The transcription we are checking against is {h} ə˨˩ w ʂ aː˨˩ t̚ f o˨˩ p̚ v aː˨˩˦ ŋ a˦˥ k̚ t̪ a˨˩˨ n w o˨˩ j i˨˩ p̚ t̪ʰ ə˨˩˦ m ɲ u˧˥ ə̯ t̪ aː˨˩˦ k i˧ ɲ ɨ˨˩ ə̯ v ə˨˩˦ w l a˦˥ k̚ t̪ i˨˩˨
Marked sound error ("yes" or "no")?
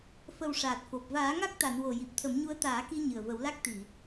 yes